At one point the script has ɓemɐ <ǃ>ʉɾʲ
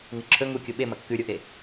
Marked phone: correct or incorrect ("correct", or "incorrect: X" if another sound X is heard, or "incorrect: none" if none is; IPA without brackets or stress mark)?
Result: incorrect: kː